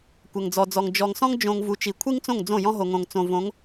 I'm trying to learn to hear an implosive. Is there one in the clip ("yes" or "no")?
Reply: no